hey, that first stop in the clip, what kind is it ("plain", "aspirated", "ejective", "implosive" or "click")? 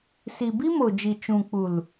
plain